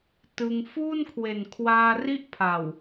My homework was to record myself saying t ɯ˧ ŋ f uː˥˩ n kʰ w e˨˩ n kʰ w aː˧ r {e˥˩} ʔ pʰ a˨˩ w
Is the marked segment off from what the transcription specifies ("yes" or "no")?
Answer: yes